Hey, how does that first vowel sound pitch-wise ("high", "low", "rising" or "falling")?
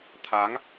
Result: rising